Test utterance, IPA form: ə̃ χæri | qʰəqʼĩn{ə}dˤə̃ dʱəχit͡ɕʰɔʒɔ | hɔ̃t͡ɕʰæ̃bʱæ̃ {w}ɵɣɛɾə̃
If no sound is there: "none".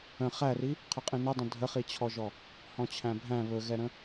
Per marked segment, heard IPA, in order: ə, β

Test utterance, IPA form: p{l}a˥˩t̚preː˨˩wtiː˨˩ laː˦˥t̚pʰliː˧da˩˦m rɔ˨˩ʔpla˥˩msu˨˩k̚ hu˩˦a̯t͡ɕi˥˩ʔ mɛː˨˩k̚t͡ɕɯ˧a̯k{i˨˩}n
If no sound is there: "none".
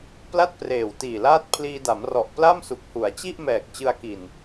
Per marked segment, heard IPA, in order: l, i˨˩

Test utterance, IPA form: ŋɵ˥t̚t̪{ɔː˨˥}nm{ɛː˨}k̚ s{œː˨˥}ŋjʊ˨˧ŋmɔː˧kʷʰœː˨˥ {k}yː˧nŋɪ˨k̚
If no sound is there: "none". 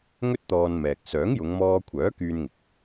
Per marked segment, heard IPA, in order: ɔː˧, ɛː˨, œː˨˥, k

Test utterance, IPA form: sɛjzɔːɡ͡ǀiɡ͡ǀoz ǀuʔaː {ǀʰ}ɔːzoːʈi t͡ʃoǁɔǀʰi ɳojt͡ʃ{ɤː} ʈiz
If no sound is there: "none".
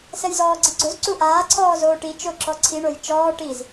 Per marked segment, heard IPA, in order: ǀʰ, ɔː

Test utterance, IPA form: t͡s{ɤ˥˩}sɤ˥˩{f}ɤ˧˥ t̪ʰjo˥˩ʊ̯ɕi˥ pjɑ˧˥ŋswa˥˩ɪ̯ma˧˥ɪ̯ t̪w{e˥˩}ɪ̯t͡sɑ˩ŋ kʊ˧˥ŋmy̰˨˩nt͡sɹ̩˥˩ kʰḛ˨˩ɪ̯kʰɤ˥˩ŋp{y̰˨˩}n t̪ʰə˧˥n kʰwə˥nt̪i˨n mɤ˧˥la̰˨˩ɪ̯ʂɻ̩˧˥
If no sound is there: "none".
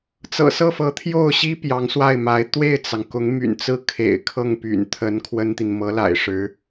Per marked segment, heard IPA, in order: ɤ̰˨˩, f, e˥˩, y̰˨˩

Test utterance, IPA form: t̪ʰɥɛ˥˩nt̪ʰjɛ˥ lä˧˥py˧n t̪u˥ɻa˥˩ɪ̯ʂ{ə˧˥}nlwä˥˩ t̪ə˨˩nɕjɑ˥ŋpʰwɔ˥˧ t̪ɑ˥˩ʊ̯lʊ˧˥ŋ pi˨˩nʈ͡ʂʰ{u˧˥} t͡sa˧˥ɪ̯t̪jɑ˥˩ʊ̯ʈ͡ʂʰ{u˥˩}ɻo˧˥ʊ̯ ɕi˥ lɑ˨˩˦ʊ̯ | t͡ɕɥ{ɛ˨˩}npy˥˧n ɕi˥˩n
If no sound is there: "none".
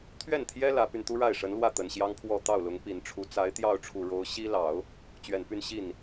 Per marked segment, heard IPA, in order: ə˧˥, u˧˥, u˨˩, ɛ˨˩

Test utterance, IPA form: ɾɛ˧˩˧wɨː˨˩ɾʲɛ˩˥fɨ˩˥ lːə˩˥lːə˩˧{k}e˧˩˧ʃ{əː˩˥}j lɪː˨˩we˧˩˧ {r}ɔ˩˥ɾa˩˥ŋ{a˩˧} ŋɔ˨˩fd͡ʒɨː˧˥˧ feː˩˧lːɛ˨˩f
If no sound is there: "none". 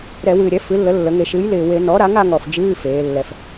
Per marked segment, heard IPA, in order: ŋ, ɨː˩˥, n, a˩˧

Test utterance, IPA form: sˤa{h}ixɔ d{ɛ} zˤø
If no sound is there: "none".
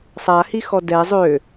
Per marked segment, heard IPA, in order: h, ɛ

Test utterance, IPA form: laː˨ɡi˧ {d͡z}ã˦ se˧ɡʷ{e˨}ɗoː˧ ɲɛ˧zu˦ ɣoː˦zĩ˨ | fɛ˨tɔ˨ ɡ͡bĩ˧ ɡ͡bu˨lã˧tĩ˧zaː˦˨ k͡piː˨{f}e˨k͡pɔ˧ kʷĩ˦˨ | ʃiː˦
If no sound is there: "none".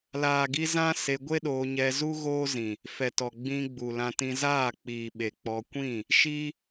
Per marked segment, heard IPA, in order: z, e˦, ɓ

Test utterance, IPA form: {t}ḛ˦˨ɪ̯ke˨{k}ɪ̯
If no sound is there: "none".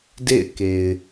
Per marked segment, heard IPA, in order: d, none

